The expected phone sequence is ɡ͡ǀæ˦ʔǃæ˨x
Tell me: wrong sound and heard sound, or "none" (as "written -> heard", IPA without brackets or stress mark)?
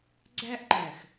none